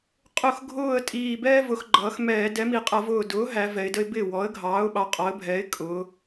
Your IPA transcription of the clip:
qʼ ʊ˧˩ x ɡʱ ʊː˧˩ ə̯ tʼ iː˧˩ b ɛː˥ v ʊ˩˧ x ɡ͡ǃ ʌː˩˧ x m ɛː˧˩˧ d ɛ˩˥ m i˩˧ qʼ ʌ˧˩˧ v ʊː˧˩ d ʊː˩˥ ɦ æ˩˧ v ɛ˩˧ ɪ̯ d ə˥ ɪ̯ b ɪː˥˩ w ɔ˩˥ ə̯ ɡʱ ɑː˩˥ ʊ̯ ɓ ɑ˩˥ qʼ ɔ˩˥ ə̯ bʱ ɛː˩˥ ɪ̯ kʼ ʊ˩˧

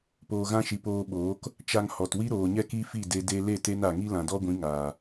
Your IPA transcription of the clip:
p oː˨ ɣ ã˧ ʃ i˨ p oː˧ ɓ oː˨˦ k | t͡ʃ a˧ ŋ h ɔ˨ t w i˦ ɾ oː˨ ɲ ɛ˦ k i˦ f i˦˨ d e˧ d e˦ l e˦˨ t e˧ n a˨ ŋ i˦ l ã˨ d ɔ˦ ɡʷ ĩ˨˦ ŋ aː˨

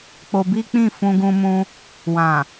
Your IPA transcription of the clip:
k͡p o˧ b i˦ k͡p ĩ˦˨ f ũ˧ ɡ ũ˧ m ũ˧ | w ã˨

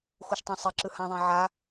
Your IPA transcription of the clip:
x u ʃ tˤ ɛ̃ sˤ e ǁ ɯ h ã ðˤ ẽ ʕ a

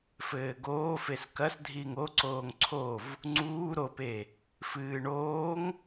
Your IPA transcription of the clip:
f ɘː ɡ oː f e s k ɐ s dʱ iː ŋ o ǀ oː ŋ ǀʰ o v | ŋ͡ǀ uː ɾ o p e | f ɨː ɳ oː ŋ

